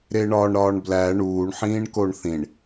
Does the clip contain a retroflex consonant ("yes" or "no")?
yes